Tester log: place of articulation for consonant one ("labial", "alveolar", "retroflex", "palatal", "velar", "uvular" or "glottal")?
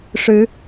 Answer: retroflex